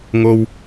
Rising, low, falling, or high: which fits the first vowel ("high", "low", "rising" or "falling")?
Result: low